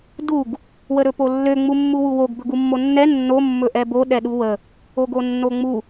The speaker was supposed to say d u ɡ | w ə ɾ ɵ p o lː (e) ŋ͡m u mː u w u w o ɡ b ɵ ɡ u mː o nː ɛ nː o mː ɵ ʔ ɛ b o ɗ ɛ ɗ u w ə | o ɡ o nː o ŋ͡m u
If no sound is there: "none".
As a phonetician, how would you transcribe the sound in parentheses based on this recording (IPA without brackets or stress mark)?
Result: ø